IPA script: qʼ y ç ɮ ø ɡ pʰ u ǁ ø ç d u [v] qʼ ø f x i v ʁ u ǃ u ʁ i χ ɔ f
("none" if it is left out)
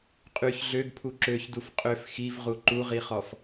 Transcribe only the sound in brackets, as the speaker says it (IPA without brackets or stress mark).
f